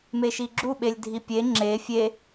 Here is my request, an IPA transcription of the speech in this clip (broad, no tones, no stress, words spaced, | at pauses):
meʃiɡ͡ǁu ɓelʲdʱipʲe ŋ͡ǁe fʲe